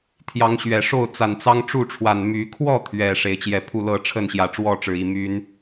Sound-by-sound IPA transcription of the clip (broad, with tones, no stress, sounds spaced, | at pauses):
t̪ʰ j ɑ˨˦ ŋ ɕ ɥ ɛ˨˩ ʂ o˥˨ ʊ̯ t͡s a˨˩ n t͡s ɑ˦ ŋ ʈ͡ʂ u˥˨ ʈ͡ʂʰ w a˨˩ n m y˨˦ kʰ w ɔ˥˨ t̪ʰ ɥ ɛ˨˩ ʂ e˨˦ ɪ̯ t͡ɕ j ɛ˨˦ pʰ u˥˨ l ɤ˥˨ ʈ͡ʂʰ ə˥˨ n ɕ j ä˨˩ ʈ͡ʂ w ɔ˥˨ ʈ͡ʂ ɻ̩˩ i˨˩ m y˨˦ n